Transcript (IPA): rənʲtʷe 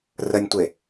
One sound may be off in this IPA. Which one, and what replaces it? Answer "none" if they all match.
none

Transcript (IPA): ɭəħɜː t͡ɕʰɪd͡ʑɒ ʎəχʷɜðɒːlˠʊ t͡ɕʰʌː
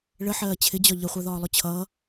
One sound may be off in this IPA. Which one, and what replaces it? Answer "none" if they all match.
none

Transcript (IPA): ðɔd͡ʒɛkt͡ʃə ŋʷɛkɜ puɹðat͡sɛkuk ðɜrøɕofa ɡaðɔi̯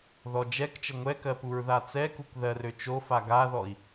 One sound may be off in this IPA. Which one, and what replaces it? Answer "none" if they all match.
ɕ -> t͡ʃ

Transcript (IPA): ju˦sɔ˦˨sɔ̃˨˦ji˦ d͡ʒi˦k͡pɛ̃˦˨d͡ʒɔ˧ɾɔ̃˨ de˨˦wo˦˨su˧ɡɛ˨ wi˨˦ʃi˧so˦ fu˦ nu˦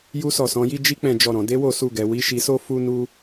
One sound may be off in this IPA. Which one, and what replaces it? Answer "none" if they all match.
none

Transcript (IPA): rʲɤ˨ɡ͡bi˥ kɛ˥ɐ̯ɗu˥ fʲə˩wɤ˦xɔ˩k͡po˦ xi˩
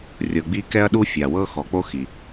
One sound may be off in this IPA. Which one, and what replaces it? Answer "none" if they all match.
ə˩ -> a˩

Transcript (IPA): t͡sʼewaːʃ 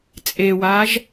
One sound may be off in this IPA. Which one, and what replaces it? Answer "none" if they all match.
ʃ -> ʒ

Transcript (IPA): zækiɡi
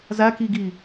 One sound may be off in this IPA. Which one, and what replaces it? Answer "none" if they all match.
none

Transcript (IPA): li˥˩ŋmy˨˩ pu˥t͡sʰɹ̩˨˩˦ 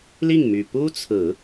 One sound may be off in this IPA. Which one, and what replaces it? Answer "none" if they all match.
none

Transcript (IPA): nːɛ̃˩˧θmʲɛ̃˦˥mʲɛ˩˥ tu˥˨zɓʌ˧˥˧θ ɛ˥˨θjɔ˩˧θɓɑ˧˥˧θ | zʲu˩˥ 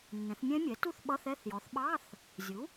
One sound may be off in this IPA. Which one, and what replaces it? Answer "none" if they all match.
z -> θ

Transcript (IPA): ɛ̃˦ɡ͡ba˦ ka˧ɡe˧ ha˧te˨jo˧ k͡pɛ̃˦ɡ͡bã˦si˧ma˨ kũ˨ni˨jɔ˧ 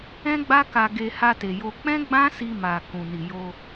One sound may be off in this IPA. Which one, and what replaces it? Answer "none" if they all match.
ɔ˧ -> o˧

